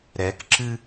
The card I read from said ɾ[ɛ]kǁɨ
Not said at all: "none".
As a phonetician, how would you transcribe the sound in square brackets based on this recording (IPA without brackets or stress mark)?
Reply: ɛ